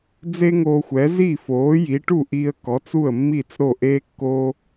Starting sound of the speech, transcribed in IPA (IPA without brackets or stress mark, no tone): d͡z